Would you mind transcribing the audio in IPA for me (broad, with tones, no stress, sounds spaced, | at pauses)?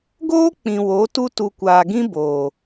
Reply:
ɡ oː˦ k͡p ĩ˨ w o˨˦ t u˦ t u˨ kʷ aː˨ ɡ ĩ˦ b oː˨